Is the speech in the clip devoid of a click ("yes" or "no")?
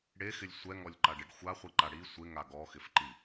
no